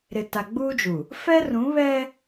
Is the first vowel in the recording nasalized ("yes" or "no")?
no